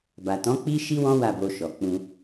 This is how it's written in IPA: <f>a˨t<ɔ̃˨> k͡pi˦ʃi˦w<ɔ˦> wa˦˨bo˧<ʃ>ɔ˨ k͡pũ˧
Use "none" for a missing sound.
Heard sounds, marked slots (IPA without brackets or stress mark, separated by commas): b, ɔ̃˨˦, ɔ̃˦, ʃ